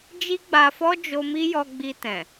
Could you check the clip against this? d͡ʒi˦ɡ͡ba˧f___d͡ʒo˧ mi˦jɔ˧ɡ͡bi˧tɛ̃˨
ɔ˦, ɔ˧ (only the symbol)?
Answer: ɔ˦